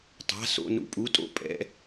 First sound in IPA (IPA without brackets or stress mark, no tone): tˤ